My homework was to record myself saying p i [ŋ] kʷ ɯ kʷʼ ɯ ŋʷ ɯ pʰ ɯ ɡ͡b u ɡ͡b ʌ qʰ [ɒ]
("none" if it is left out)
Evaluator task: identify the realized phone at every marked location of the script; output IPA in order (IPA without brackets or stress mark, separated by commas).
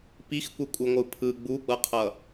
x, ʌ